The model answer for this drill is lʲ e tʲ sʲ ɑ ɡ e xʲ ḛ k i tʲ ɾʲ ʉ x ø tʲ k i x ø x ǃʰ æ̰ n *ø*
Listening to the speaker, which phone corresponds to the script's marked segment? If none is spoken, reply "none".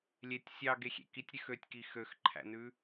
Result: ʉ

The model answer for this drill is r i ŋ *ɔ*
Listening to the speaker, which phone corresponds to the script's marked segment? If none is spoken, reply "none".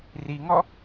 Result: ɔ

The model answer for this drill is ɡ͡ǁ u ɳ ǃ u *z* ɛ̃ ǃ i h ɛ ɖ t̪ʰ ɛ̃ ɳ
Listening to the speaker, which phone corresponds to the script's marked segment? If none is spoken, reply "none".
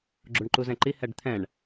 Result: z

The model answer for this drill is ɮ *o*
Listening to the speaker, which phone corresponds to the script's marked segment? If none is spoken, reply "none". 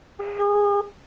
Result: o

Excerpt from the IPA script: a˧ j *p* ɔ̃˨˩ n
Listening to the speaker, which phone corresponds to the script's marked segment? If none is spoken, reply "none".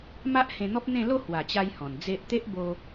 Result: h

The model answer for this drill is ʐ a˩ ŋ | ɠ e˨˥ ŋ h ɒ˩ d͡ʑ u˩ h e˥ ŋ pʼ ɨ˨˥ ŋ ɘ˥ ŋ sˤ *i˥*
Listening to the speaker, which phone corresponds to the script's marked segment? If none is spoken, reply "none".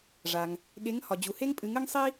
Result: i˥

